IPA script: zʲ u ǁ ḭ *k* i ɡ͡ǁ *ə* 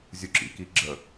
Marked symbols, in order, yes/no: yes, yes

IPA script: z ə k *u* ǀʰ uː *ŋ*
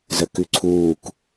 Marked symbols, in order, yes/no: no, no

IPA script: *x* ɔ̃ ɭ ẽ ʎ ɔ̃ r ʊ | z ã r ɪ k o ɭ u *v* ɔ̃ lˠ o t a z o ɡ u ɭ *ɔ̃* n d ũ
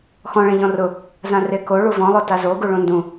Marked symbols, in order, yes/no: yes, yes, no

